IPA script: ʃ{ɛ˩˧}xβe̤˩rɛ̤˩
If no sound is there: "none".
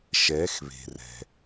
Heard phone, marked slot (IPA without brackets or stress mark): ɛ˩˧